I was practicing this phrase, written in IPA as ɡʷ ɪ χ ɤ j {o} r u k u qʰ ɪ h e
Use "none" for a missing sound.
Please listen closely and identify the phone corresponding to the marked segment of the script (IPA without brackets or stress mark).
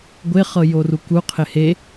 o